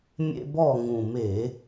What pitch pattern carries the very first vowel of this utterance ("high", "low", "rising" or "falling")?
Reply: high